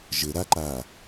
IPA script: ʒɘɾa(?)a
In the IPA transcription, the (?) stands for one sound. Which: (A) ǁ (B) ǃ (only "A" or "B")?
B